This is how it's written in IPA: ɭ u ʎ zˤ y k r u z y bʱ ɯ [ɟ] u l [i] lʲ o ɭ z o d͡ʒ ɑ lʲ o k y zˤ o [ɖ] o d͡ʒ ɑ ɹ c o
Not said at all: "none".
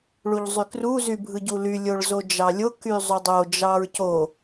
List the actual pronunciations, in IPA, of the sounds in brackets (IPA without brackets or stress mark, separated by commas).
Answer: ɟ, y, dˤ